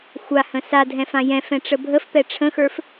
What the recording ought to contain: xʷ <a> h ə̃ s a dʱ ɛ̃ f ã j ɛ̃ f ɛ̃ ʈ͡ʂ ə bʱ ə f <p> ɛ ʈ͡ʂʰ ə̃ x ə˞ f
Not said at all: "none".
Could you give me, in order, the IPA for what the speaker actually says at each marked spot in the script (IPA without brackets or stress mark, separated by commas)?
a, p